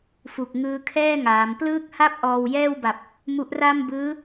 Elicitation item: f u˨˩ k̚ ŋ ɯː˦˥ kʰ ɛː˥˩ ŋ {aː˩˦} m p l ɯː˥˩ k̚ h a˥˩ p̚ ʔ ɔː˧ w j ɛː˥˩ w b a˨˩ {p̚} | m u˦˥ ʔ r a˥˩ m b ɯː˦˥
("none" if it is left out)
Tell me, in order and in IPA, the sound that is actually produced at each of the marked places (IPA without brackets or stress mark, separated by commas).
aː˩˦, p̚